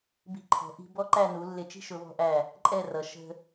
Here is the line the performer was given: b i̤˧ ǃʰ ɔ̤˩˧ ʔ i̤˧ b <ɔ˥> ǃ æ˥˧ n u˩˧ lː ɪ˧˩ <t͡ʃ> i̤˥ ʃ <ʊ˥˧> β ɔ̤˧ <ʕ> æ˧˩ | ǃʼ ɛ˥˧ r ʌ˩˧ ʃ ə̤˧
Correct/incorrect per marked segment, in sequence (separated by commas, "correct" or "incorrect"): correct, correct, incorrect, incorrect